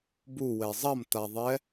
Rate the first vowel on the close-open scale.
close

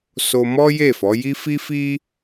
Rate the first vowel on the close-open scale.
mid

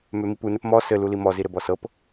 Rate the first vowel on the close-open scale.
mid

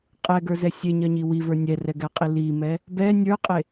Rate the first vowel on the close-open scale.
mid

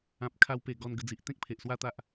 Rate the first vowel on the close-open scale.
open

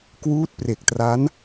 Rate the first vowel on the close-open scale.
close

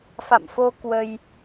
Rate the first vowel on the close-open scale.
open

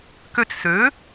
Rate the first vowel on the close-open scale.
mid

